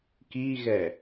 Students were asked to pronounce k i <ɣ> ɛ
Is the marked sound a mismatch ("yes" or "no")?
no